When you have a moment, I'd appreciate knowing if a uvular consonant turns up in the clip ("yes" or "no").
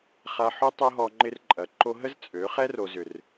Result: yes